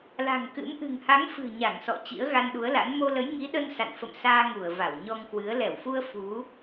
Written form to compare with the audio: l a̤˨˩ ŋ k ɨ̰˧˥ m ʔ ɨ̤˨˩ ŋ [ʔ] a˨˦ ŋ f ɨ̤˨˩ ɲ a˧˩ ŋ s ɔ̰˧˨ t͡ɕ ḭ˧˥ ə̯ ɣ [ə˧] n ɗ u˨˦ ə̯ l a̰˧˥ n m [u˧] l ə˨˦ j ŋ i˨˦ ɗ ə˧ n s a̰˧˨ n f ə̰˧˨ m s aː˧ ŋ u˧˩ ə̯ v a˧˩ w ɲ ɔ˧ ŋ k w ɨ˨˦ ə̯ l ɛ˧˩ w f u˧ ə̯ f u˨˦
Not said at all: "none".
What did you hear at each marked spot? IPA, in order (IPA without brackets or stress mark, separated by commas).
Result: h, a˧, o˧